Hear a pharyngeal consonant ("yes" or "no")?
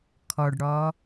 no